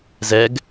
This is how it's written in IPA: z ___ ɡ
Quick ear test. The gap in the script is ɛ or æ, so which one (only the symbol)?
ɛ